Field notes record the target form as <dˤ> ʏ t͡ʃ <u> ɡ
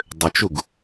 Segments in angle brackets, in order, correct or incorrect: correct, correct

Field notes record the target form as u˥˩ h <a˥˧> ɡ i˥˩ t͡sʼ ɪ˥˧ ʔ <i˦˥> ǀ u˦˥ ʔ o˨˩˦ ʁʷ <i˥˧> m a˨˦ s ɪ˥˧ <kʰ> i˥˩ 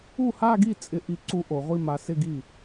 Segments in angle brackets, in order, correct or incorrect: correct, correct, correct, incorrect: ɡ

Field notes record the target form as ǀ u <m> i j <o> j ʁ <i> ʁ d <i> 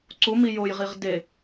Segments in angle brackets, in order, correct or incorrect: correct, correct, correct, incorrect: e

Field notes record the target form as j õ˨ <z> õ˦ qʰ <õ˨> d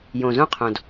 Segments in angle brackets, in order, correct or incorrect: correct, correct

